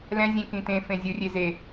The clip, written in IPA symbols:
lɛ̃zʲẽ kĩt̪ẽ fẽzʲɯrʲe ze

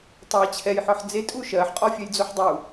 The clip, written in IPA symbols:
tˤɜ t͡ɕʰɛjħɔħ d͡zetʼu ʃɜħqʼɔfʲɛjd͡zoħ dˤu

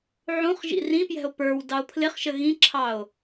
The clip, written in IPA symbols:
ʕũχ ʒḭrĩpjɛ̤o̯ pə˞w dɑo̯pʰlɪχʃə ɣĩǁʰɑo̯

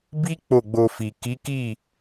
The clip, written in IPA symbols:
bi˦ k͡po˦˨ɡ͡bo˧fi˨ ki˨˦ki˦˨

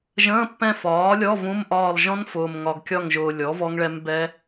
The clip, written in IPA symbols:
ʒə̃ː˧˥˧pːɛ̃˦˨ fɒː˩˥lʲɔ˧˥˧ vũ˧˥˧mʔɒː˦˨lˠ ʒɔ̃˦˥nfʊː˨mŋɒ˨ɡkʲɒ˦˨ŋ ʒʊː˨lʲɔ˩˥ vɔ˦˥ŋɭɛ˦˥m bɛ˦˥

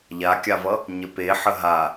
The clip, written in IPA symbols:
ʎakʲavʌ | ɲəpeħə ɦa

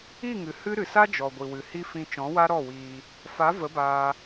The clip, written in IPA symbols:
i˦˨ŋɨ˨ hɨ˦ ɾɨ˨sa˦ d͡ʒɔ˨ɡʷi˨ wɨ˨hi˦fĩ˧ t͡ʃɔ̃˨˦wa˦ɾɔ˦˨wiː˧ | fa˨˦ və˨˦baː˧

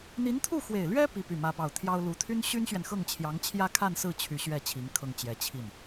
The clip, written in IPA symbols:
n̪i˧˥nt̪ʰu˥˩xwe˨˩ɪ̯lɥɛ˥ pi˥py˥˩mä˥pɑ˥˩ʊ̯ t̪ʰjɑ˥ʊ̯ lu˧˥t̪ʰy˥n ɕy˥nɕɥɛ˨nxɤ˥˩ŋt͡ɕʰjɑ˧˥ŋ t͡ɕʰjä˥˧kʰa˥˧nsɹ̩˥˩ t͡ɕʰy˧˥ɕɥɛ˥˩ t͡ɕʰi˧˥ŋkʰɤ˥˩ŋ t͡ɕjɛ˧˥ t͡ɕʰi˥˩n

